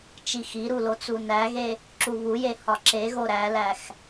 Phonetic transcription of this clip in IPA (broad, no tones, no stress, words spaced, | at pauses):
t͡ʃixiɾu lot͡sunæɣe | ǁuβuje hɒǁeɣo ɾælæx